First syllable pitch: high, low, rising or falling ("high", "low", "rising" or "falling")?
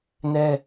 high